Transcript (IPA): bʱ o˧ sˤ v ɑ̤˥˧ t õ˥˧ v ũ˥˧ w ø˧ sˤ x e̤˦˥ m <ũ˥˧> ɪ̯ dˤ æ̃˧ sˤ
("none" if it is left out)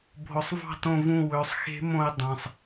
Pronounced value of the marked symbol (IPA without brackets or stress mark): õ˥˧